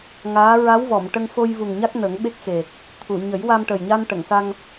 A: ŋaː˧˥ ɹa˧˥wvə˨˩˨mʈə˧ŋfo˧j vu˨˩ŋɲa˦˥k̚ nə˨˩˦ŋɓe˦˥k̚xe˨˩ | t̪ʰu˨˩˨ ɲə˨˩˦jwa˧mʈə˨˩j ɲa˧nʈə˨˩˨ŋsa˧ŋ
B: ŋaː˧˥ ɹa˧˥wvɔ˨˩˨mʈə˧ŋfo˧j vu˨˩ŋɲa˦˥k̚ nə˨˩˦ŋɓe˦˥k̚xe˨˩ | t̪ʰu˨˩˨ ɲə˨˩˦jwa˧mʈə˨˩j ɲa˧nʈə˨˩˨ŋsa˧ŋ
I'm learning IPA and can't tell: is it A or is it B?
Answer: B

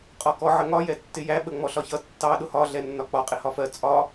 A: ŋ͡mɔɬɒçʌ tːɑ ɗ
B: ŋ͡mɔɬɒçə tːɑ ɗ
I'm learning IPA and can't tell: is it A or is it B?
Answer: A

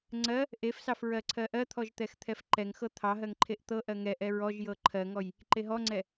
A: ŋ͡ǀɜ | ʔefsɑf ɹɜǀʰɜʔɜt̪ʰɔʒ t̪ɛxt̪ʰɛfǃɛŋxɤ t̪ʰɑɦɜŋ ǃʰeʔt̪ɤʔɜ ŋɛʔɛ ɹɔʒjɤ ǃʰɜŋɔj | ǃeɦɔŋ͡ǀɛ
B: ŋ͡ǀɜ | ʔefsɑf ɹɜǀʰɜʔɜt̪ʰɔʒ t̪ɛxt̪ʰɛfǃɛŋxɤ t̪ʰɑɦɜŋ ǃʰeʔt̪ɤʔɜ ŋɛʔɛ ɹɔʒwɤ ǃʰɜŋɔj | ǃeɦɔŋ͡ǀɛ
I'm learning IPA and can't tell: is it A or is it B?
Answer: A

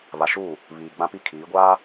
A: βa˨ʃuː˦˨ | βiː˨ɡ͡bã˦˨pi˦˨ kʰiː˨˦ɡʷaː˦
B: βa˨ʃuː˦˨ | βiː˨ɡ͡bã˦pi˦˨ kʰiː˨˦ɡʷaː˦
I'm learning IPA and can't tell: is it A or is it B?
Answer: B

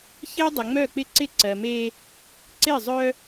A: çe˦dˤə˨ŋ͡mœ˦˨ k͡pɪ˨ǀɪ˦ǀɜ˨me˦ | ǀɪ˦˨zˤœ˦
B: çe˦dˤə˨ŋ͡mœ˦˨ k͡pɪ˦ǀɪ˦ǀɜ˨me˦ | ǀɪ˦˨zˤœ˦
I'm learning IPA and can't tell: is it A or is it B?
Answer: B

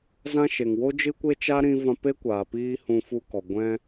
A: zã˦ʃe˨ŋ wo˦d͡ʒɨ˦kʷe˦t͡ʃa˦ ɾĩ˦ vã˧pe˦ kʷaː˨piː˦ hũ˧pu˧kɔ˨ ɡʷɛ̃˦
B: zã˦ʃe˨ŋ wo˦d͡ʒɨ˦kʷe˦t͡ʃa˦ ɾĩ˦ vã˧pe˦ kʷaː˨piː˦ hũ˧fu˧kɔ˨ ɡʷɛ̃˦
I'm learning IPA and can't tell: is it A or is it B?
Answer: B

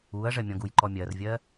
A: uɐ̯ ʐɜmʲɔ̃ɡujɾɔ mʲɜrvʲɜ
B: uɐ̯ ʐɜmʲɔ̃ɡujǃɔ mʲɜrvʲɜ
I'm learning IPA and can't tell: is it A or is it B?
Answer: B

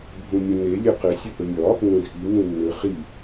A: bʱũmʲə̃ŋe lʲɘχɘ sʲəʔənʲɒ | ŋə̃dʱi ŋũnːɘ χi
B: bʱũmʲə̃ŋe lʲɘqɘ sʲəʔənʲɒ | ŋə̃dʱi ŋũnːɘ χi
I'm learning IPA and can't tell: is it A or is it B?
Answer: B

